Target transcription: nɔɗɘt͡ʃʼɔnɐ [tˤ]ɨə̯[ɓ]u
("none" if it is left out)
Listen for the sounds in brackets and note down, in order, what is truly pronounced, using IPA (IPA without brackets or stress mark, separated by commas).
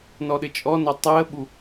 tˤ, ɓ